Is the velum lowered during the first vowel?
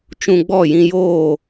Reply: yes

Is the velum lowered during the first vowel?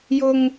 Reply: no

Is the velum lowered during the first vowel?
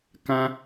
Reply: yes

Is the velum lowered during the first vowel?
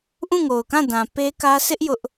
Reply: yes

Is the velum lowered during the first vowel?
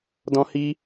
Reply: yes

